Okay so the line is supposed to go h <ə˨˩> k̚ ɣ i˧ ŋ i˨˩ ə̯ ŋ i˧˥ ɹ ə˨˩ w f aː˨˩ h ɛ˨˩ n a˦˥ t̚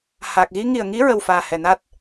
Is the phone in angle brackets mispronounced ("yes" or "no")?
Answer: yes